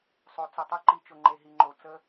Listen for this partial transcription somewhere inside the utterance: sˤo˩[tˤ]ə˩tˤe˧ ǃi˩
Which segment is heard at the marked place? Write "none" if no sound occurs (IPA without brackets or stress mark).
t͡s